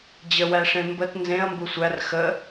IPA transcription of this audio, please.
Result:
d͡ʑ ə w æ ʂ ẽ m b ə t n z ẽ ɐ̯ m b u sʷ æ r x ə

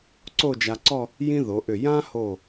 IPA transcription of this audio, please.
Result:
ǀ o˥˧ d͡ʒ a˧ ǀ ɔ˥˧ | j ĩ˥ ð o˩˧ ʔ ʏ˧˩ j ã˥ h o˧˩

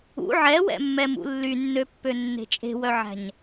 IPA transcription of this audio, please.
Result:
ṵ ʕ ɛ w ɛ̰ mː ɛ m ṵ lː y nː ø pː ø nː e̤ t͡ʃʼ e̤ w œ ʕ æ̤ ɲ

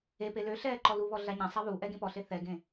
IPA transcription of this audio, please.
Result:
e p e l ø ɬ ɛː ǃ ɔ l u β ɔ ɮ a ɲ ã sˤ a β u ʔ ɛ ɡ ẽ p ɔ ɬ e θ ɛ ɡ ẽ

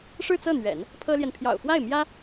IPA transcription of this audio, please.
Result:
ʂ ɻ̩˥˧ t͡s ɤ˥˩ n̪ ɥ ɛ̰˨˩˦ n | pʰ ɤ˥ l j ɛ˨ n pʰ j ɑ̰˨˩ ʊ̯ f w a˥˩ ɪ̯ m j ä˥

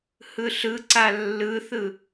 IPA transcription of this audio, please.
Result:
h ɯ ɬ ɯ ǀ a lː ɯ θ ɯ

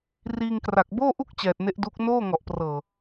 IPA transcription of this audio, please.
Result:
r iː˧ ŋ k r a˨˩ k̚ b oː˥˩ ʔ u˥˩ k̚ t͡ɕ ɛː˨˩ t̚ n e˦˥ ʔ d u˦˥ k̚ n oː˥˩ ŋ ɔ˨˩ ʔ p r ɤː˨˩

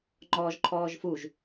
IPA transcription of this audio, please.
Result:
ŋ͡ǃ ɔː ʒ ǃʰ ɔː ʒ f u ʒ

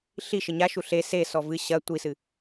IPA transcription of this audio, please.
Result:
ɬ i ʃ ɘ ɲ a ʃ u ɬ e s e s ɔ v ɨ ɕ ɐ tʷ i s ɨ

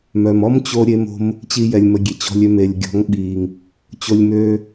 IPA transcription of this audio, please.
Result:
m œ˨ m ɔ˦ m t͡ɕ o˧ ɾʲ e˧ m o̤˧ m | t͡ɕ i˦ j ɛ˧ lʲ m ə˧ ɡʲ e˨ t͡ɕ ɔ̤˧ lʲ ø˦˨ m e˨ lʲ ɡʲ ɔ̤˨˦ ŋ ɓ i˨ ŋ | t͡ɕ o˦ lʲ m ø˦

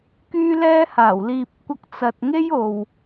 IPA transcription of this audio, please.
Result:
k yː˥ l ɛː˥ h aː˨˩ w l iː˧ p̚ kʷ ɐ˧ k̚ t͡s ɐ˨ t̚ ŋ e˥ j o˨ w

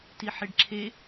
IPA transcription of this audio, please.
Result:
t i ħ e ɖ ǁʰ e

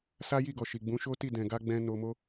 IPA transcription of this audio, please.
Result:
s a˦ j i˦˨ ɡ ɔ˨ ʃ i˨ ɡ͡b ũ˨˦ ʃ o˦ t i˦˨ d ɛ̃˨ ɡ a˧ ɡ͡b ɛ̃˧ n o˧ m o˦

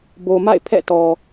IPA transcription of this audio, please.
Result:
b o˨ m a̰˦˨ ɪ̯ pʰ ɛ̰˦˨ t ɔ˨

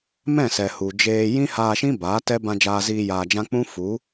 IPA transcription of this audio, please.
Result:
m ɛ̃˦˨ s ɛ˨ h u˨ d͡ʒ eː˧ j ĩ˦ h aː˧ ʃ ĩ˦ b aː˨˦ t ɛ˦ b ã˧ d͡ʒ aː˧ z iː˧ j aː˧ d͡ʒ ã˦ k͡p ũ˦ f u˨˦

